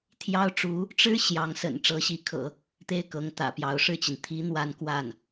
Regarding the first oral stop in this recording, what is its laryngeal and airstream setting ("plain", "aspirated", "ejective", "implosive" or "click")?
aspirated